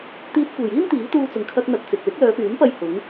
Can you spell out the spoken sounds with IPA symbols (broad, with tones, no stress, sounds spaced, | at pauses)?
t̪ iː˧ t̚ kʷ e˨˩ j iː˥ n t̪ iː˨˥ t̪ uː˧ t͡s ʊ˨˩ ŋ kʰ ɐ˥ k̚ n̪ ɐ˧ k̚ t͡s ɪ˨ k̚ l ɪ˨˥ k̚ l œː˨˧ p yː˨˥ n p ɐ˧ j h ʊ˨˥ ŋ